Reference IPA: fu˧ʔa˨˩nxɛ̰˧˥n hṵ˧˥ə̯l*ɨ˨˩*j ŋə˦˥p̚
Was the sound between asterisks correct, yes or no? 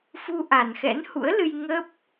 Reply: no